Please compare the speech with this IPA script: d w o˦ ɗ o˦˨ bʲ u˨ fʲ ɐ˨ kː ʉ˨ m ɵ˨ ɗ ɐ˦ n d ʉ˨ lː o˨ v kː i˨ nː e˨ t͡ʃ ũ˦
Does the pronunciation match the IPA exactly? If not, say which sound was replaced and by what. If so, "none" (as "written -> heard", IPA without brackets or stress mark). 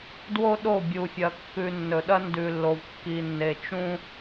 m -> nː